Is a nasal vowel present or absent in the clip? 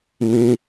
present